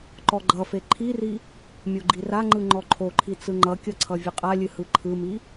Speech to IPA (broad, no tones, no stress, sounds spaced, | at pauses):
ǃ ɔ ɡ͡ǃ ʌ f e ǃʰ i r i | mʲ o ɡ͡ǃ i r a ŋ͡ǃ ɯ ŋ͡ǃ ɔ ǃʰ o ǃʰ i t͡s ɯ ŋ͡ǃ ʌ kʲ ʌ ǀʰ ʌ vʲ ɨ qʼ a lʲ ɨ h ɯ ǃʰ ɯ m i